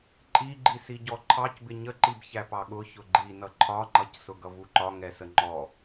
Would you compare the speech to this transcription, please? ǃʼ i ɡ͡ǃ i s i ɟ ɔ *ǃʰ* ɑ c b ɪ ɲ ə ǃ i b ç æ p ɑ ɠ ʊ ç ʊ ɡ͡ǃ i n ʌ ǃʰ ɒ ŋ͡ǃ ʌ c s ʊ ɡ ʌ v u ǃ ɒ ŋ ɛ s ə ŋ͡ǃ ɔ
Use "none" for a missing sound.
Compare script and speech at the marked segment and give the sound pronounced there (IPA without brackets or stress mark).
ǃʰ